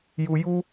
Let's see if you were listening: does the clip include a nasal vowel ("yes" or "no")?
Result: no